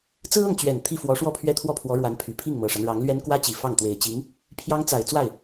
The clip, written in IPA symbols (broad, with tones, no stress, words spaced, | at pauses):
t͡sɹ̩˥ɤ˥˩ŋt͡ɕɥɛ˨˩n t̪ʰi˥˩fwɔ˧˥ ʂwɔ˥˩pʰɥɛ˥t̪ʰwɔ˥˩pʰwɔ˧˥ ɻwa˧˥npʰy˨˩ pʰi˥˩ŋmɤ˨˩ʂa˦n ɻɑ˧˥ŋlɥɛ˥n kwä˥t͡ɕi˨˩ fɑ˥˩ŋ t̪we˨˩ɪ̯t͡ɕi˧˥ŋ | pʰjɑ˥ŋt͡sa˨˩ɪ̯ t͡swa˥˩ɪ̯